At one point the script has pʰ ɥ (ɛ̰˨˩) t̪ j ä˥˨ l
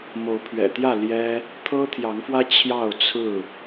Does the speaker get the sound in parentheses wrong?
no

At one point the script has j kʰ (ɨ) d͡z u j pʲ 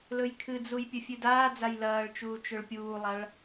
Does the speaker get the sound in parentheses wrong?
no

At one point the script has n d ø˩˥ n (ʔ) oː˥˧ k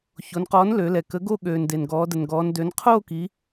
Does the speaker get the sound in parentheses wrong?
yes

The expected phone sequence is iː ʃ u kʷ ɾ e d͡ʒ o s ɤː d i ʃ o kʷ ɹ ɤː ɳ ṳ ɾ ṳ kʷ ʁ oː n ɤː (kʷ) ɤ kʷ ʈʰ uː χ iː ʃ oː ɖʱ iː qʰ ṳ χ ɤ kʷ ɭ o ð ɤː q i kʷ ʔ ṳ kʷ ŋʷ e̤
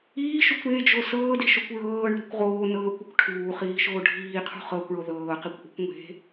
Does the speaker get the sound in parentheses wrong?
no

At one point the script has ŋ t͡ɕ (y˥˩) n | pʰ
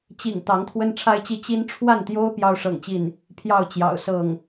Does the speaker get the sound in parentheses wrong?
yes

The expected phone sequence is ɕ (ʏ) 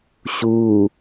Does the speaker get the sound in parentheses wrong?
yes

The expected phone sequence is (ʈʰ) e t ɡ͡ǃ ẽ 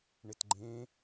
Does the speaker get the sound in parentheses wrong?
yes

